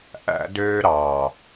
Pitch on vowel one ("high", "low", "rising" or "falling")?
high